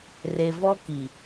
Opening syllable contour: low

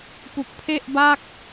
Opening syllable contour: low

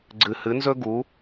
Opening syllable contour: low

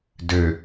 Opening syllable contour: low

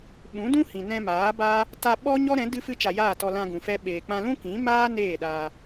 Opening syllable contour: rising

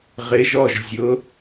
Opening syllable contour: rising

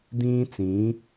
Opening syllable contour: high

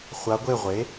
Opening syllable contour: rising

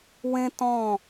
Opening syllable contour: high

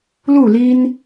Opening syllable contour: falling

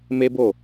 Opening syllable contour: high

